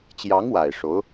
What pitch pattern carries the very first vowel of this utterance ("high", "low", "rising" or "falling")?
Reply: rising